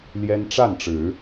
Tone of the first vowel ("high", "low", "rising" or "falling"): high